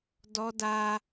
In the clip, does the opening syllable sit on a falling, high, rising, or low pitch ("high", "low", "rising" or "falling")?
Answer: high